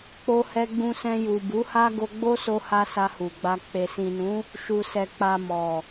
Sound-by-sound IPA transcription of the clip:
k͡p o˧ h ɛ˧ ɡ͡b ũ˧ s ɛ̃˧ j u˨ b u˨˦ h a˦ ɡ o˧ ɡ͡b o˦ s o˧ h a˧ s a˧ h u˨ ɡ͡b a˧ k͡p e˨ s ĩ˨ n ũ˨˦ | ʃ u˨ s ɛ˨ k͡p a˨ m ɔ˨

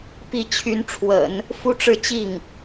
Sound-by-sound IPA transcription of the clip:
p i˥˩ t͡ɕʰ y˧˥ n ʈ͡ʂʰ w ə̰˨˩˦ n | f u˥ ʈ͡ʂ ɻ̩˥˧ t͡ɕ i˥˩ ŋ

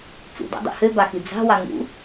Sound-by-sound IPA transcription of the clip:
t͡s ṵ d ɑ̰ dˤ ṵ h ø b ɑ x i d͡z ɑ̤ w ɑ ŋ ṵ

